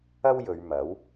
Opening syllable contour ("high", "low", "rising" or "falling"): high